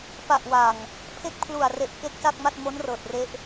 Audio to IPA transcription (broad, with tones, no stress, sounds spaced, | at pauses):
p a˨˩ ʔ w aː˨˩ ŋ | pʰ e˥˩ k̚ pʰ l u˨˩ a̯ r e˨˩ ʔ k e˦˥ k̚ s a˥˩ k̚ m a˥˩ t̚ m o˦˥ n r ɤː˨˩ t̚ r e˦˥ ʔ